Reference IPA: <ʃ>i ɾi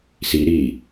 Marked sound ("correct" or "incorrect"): incorrect